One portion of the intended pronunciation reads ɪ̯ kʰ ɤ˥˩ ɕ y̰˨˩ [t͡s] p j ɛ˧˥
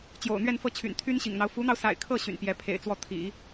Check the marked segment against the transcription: incorrect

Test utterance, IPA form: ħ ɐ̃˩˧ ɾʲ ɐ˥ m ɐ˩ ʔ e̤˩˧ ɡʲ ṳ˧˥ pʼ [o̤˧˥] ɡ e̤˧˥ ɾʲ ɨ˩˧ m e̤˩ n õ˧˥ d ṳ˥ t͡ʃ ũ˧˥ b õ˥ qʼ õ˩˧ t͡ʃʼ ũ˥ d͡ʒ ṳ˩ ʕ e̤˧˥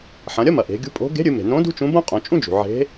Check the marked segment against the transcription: correct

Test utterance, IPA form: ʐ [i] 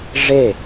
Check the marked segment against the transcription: incorrect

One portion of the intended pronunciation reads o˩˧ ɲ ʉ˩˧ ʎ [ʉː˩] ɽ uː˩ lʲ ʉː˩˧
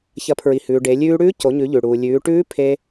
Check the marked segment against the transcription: incorrect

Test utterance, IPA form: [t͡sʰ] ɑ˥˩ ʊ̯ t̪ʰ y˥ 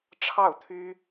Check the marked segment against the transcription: incorrect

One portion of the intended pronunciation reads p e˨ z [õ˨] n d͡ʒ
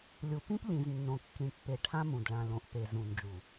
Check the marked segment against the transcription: incorrect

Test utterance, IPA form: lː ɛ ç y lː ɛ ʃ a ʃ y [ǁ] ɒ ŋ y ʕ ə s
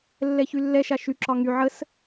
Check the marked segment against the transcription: correct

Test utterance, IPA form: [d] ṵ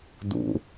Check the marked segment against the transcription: correct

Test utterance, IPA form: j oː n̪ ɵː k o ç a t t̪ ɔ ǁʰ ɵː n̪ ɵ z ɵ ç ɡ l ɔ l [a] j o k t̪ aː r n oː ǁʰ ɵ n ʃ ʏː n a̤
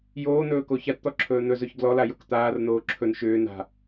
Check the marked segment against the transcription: correct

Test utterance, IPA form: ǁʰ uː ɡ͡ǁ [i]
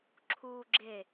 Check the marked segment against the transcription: incorrect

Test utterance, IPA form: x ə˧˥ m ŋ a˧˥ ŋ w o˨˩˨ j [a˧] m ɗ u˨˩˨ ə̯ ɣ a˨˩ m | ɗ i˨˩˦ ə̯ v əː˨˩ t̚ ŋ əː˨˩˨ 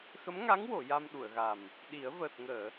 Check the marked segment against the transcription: correct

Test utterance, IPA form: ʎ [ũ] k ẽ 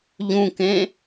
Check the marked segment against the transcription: correct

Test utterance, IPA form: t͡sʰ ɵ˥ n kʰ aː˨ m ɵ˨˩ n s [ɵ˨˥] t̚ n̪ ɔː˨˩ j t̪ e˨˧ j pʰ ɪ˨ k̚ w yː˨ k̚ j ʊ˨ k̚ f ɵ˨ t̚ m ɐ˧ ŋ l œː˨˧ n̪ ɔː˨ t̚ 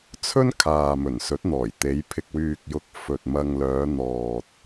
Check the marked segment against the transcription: correct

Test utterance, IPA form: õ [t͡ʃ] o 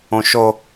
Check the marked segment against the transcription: incorrect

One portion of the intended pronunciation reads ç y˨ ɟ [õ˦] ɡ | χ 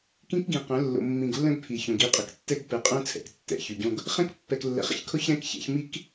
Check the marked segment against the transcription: correct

